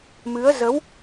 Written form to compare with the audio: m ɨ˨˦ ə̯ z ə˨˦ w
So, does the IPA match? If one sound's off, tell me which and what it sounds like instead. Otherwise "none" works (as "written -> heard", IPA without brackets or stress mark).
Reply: none